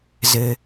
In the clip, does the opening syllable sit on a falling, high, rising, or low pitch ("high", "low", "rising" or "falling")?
low